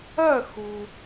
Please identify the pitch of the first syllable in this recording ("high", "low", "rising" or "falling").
falling